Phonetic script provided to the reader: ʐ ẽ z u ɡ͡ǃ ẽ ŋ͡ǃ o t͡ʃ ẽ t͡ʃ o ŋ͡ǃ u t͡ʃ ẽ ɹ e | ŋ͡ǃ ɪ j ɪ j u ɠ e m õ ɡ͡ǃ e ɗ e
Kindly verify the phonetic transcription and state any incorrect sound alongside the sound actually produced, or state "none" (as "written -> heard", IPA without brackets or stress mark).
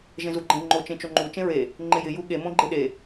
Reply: ʐ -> ʒ